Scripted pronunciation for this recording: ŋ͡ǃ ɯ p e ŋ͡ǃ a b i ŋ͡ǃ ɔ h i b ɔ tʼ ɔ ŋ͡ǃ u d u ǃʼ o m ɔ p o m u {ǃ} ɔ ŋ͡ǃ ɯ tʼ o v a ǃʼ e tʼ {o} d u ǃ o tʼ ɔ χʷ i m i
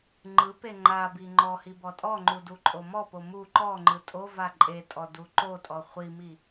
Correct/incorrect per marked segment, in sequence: correct, incorrect

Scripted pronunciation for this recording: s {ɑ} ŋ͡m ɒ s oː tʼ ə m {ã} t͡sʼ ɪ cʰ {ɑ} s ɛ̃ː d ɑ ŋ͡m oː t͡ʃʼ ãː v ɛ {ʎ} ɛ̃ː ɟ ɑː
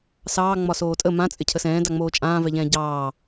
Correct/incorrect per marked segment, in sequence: incorrect, correct, incorrect, correct

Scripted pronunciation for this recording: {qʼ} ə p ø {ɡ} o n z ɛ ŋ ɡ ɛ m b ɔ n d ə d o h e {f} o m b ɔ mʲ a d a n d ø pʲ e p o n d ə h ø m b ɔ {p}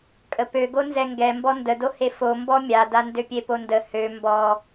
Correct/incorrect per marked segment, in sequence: incorrect, correct, correct, incorrect

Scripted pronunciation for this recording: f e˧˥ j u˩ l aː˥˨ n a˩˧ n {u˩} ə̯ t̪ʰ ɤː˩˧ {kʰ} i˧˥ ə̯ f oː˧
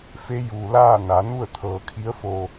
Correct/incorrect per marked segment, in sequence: incorrect, correct

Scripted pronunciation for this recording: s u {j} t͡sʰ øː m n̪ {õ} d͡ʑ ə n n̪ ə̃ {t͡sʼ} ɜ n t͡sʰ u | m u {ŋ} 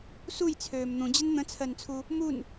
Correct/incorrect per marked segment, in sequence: correct, incorrect, incorrect, incorrect

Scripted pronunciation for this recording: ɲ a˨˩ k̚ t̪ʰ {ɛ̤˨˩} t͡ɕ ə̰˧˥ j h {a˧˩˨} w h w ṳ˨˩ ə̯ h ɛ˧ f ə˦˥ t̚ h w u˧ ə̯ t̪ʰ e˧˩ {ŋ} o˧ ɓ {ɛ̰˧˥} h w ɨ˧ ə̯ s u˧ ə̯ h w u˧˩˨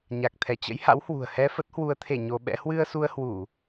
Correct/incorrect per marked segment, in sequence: incorrect, incorrect, incorrect, correct

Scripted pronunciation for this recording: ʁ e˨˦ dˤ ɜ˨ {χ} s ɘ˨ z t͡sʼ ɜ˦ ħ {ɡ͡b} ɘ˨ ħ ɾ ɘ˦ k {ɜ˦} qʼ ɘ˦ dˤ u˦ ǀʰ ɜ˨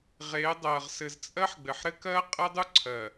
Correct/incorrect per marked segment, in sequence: incorrect, correct, correct

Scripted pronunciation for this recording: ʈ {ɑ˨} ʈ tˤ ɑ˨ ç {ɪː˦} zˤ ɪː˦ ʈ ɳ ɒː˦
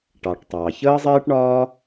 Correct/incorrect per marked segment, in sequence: correct, incorrect

